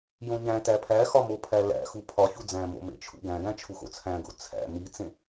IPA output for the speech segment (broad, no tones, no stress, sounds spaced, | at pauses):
j õ ɲ æ̃ t æ pʰ æ x ɒ m o pʰ æ l æ̰ x u pʰ ɒ ç u d͡z æ̃ m o̰ m ḛ t͡ʃʰ ṵ ɡ æ̃ ɡ æ̃ t͡ʃʰ u x o̰ t͡sʰ æ̃ ɡ o̰ t͡sʰ æ̰ m i t͡s ẽ